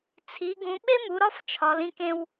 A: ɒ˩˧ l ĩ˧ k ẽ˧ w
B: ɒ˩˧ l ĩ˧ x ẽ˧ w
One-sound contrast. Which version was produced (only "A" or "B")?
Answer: A